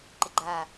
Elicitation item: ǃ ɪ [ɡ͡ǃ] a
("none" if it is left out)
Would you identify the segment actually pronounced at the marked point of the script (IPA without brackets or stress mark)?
ɡ͡ǃ